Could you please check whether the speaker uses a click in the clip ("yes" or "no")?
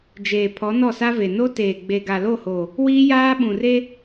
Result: no